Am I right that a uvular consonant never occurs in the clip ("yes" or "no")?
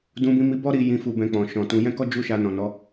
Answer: yes